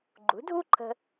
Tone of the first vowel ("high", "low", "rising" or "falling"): rising